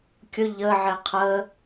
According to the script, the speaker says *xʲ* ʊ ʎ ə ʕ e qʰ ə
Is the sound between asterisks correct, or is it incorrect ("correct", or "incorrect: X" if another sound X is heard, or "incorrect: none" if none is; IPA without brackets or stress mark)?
incorrect: kʲ